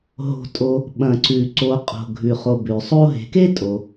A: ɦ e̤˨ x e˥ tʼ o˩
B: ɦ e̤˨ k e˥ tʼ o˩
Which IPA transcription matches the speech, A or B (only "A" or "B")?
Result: B